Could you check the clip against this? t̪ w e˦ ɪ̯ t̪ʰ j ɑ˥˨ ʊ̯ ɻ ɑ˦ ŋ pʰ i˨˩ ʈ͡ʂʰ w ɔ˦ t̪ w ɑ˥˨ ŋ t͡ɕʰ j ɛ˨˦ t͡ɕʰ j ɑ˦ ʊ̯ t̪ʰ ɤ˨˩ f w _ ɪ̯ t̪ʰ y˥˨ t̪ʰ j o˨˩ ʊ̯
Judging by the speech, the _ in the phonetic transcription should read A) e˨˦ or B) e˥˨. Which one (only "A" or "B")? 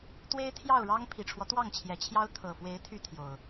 A